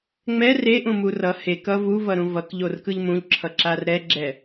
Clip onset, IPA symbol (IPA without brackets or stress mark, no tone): ŋ͡m